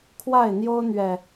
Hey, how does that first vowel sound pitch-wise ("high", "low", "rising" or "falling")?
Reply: falling